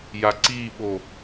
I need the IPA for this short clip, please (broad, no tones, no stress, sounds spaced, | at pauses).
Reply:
j a ǀ i ɓ o